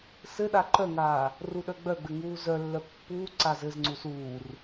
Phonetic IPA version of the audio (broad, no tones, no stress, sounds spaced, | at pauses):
s ɘ ɗ a ǃ œ ŋ aː | r u ɗ œ ɡ͡b œ ɡ͡b ɘ ŋ uː z œ lː œ pː uː ǀ a z ɘ z ŋ͡ǀ u s uː r